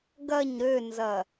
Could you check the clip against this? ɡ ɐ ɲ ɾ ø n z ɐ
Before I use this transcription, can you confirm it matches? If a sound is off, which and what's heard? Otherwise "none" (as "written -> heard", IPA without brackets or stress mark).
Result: none